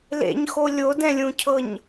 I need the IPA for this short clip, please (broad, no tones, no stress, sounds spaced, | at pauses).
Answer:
l ḛ ɲ x o lʲ o d ɛ̃ lʲ ũ cʰ ɤ ɲ